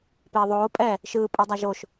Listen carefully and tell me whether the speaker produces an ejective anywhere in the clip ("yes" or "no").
yes